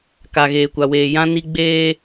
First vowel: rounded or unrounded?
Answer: unrounded